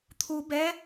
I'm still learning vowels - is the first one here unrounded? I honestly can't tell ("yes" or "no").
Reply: no